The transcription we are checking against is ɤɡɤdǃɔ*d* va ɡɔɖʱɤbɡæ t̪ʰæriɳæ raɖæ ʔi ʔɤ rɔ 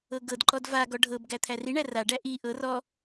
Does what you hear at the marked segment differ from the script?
no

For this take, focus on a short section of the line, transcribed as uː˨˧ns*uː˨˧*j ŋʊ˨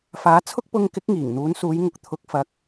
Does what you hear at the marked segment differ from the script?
no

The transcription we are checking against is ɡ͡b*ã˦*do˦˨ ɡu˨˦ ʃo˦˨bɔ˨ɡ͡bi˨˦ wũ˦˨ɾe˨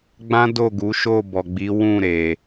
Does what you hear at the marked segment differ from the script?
no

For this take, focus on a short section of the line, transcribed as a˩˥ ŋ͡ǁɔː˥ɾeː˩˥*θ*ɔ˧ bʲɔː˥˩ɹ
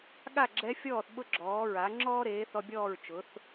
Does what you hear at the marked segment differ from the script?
no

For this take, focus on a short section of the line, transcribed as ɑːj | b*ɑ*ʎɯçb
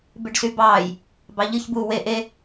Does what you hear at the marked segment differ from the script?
no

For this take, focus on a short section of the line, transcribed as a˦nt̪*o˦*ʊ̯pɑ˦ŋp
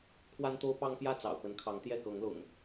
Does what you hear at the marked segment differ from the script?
no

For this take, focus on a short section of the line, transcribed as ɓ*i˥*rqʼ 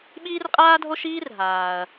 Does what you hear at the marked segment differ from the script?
yes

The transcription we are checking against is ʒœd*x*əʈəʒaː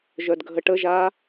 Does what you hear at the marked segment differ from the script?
yes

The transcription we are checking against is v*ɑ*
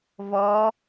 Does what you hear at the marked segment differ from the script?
yes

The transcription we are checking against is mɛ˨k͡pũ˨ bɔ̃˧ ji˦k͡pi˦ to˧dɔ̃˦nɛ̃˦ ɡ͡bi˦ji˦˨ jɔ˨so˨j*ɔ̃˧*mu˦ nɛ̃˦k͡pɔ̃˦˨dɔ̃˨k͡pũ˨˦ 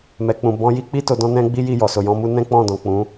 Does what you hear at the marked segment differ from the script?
no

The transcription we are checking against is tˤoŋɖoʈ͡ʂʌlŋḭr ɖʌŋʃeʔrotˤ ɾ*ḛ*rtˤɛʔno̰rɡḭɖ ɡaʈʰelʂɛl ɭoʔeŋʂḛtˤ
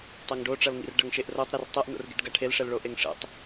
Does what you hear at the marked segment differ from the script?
yes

